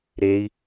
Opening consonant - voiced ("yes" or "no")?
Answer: yes